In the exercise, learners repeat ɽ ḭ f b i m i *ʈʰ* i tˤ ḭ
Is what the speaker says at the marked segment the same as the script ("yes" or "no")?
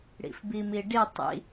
no